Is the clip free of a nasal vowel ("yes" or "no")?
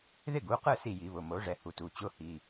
yes